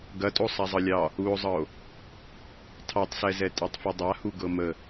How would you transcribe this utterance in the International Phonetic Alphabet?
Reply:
ɡ ɐ tʼ o sˤ a zˤ ɤ lʲ ɑ | u o̯ zˤ ɤ o̯ | tʰ ɑ tˤ s ɛ z ɛ tʼ a tˤ f u dˤ a h u ɡ ɤ m ə

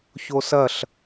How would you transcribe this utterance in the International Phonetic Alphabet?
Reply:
ç o s ɐ ɬ

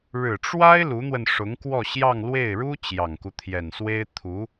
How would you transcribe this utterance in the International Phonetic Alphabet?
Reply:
ɻ ɻ̩˨˩ ʈ͡ʂ w a˥ ɪ̯ l u˧˥ n̪ w ə˧ n ʂ ʊ˧˥ ŋ k w ɔ˥˧ ɕ j ɑ˥˧ ŋ l w e˥˩ ɪ̯ ɻ u˥ t͡ɕ j ɑ˨˩ ŋ k u˦ t̪ʰ j ɛ˨˩ n s w e˥ ɪ̯ t̪ʰ u˧˥

